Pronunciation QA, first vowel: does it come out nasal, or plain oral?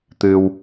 oral